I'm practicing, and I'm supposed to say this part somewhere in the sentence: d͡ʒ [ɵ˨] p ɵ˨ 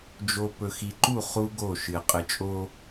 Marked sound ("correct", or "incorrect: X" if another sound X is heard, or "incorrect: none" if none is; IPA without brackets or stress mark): incorrect: o˨